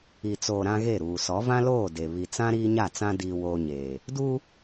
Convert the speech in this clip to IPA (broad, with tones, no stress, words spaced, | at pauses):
i˨t͡soː˨ ɾã˦ɣe˦˨ɾuː˨ sɔ˨˦vã˦ loː˦˨de˨ βi˨t͡sã˦ ɾiː˦ɲa˦˨t͡sã˦ diː˨woː˨ ɲeː˨ | du˦